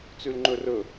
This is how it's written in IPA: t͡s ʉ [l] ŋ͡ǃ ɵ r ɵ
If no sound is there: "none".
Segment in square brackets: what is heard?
l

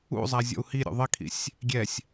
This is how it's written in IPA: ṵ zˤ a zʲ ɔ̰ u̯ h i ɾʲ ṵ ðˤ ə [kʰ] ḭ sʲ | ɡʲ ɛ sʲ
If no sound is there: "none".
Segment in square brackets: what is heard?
kʰ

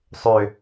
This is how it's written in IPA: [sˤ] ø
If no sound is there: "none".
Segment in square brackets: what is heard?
sˤ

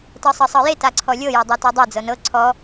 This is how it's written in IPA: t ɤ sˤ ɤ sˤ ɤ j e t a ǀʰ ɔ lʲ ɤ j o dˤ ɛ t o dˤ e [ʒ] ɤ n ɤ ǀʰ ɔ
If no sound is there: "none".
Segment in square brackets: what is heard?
d͡z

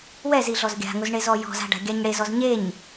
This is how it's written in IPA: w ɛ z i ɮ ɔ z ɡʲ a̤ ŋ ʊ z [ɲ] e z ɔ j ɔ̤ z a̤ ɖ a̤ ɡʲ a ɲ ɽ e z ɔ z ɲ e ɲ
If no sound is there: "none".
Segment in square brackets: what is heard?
ɳ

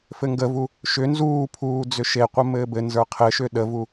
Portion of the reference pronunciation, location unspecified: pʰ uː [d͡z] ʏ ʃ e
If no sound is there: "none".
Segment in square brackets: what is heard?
d͡z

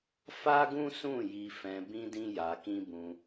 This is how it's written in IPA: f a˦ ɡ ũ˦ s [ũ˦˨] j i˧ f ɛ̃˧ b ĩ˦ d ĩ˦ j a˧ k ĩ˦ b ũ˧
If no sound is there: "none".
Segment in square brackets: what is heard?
ũ˦˨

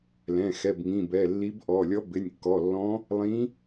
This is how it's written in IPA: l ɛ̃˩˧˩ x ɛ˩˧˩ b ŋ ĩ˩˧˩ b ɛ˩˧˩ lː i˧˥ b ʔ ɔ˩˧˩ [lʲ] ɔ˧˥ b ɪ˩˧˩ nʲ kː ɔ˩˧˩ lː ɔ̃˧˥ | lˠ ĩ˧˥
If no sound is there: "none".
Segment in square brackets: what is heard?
lʲ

